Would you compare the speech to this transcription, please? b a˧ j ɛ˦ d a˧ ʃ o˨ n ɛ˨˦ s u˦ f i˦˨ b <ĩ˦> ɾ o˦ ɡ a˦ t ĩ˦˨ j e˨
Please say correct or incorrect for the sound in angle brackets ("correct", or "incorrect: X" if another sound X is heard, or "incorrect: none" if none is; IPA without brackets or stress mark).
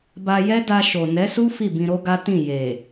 incorrect: ĩ˧